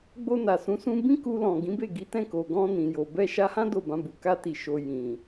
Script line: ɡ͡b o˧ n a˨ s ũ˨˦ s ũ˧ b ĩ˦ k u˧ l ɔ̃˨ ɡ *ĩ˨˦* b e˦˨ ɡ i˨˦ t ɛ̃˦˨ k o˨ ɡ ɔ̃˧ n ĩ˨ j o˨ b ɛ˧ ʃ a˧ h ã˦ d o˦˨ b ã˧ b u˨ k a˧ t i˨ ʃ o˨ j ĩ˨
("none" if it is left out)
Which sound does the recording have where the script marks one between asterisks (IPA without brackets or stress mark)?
ĩ˨˦